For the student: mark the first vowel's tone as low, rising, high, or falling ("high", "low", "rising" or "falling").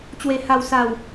low